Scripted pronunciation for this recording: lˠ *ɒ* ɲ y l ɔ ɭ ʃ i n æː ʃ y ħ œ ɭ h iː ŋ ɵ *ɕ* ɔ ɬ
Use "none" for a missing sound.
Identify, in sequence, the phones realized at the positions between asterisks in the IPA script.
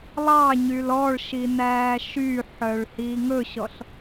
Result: ɑ, ɕ

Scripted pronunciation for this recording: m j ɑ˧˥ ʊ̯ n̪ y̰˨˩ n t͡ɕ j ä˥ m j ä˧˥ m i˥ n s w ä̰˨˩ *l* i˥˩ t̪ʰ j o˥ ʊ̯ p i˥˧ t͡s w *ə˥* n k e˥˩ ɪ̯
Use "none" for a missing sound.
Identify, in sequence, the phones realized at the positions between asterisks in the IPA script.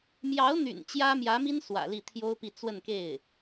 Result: l, ə˥˧

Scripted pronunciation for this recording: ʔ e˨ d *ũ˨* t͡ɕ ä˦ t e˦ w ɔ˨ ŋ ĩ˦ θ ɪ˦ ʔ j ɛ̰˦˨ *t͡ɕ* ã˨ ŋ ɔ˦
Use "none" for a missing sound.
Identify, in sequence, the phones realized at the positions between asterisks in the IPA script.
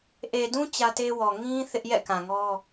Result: ũ˦, k

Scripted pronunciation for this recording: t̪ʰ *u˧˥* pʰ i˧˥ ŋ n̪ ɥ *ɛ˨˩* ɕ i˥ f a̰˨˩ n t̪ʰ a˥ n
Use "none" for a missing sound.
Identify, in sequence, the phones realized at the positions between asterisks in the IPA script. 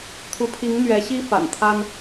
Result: u˧˥, ɛ˧˥

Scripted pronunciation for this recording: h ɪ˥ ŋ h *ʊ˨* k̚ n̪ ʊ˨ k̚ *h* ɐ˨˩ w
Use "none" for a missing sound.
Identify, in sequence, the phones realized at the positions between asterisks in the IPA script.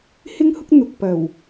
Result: ʊ˥, p

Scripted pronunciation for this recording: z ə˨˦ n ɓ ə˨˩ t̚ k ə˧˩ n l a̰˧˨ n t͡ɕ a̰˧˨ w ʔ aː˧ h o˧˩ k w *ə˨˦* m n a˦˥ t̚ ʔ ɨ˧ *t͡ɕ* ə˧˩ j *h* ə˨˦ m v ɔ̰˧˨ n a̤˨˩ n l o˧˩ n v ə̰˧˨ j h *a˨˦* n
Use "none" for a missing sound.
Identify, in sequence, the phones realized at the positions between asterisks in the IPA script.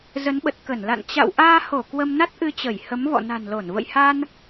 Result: ə˧, t͡ɕ, h, a˧

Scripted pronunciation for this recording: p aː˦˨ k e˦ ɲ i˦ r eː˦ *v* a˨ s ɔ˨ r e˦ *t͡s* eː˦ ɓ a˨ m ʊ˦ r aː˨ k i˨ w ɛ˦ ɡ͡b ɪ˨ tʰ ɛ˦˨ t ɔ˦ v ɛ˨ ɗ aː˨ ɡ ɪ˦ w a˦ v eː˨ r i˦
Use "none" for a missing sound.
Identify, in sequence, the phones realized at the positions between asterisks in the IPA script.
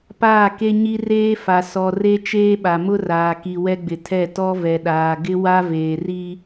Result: f, t͡ʃ

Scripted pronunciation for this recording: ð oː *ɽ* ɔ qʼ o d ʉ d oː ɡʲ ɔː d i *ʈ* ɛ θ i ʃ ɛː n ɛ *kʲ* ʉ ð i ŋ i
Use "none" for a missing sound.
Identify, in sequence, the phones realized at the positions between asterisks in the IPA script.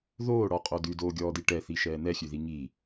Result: ɽ, ʈ, xʲ

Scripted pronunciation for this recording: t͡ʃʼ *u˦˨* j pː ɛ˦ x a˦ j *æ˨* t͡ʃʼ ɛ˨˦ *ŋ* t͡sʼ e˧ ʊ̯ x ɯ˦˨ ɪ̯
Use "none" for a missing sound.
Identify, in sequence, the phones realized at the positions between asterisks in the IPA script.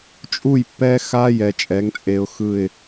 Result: u˦˨, ɛ˨, ŋ

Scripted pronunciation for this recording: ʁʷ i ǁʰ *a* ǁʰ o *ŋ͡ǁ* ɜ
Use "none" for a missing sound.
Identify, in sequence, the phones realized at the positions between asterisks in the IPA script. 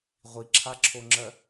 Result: a, ŋ͡ǁ

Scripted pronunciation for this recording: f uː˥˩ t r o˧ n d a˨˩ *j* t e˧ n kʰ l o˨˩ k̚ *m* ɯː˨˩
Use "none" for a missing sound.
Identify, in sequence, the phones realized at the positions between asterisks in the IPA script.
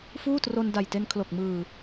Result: j, m

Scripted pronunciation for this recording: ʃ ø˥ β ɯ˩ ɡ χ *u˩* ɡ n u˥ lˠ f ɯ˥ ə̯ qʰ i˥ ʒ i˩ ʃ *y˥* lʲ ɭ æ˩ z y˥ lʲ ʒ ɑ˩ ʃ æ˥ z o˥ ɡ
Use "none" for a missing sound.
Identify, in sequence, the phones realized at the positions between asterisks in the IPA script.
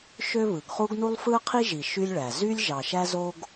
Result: u˥, y˥

